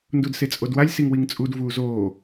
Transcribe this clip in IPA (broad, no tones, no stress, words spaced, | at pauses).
ndudset͡sʼodwalʲ siŋwiŋt͡sʼud vuːzoː